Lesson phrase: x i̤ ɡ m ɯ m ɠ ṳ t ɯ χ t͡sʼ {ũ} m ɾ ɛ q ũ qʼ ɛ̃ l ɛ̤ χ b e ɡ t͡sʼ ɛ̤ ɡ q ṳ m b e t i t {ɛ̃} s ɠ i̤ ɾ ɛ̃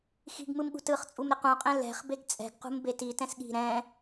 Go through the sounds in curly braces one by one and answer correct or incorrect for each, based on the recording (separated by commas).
incorrect, correct